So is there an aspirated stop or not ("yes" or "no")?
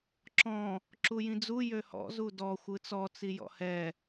no